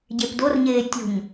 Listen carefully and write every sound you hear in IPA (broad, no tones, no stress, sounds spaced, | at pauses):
ɟ e p d o r ɲ eː tʲ o̤ ɲ